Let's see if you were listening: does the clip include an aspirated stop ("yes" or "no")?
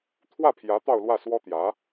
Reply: yes